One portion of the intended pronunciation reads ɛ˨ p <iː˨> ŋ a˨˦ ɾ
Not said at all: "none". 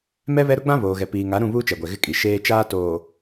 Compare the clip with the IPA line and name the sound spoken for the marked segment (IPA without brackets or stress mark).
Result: iː˨